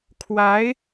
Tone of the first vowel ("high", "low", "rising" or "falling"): rising